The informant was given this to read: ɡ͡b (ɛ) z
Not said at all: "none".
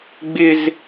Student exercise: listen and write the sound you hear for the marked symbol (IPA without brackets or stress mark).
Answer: ɪ